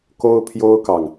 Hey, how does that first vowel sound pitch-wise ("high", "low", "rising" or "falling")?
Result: high